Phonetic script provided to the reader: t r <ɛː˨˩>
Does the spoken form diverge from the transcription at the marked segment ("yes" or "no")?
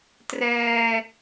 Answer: yes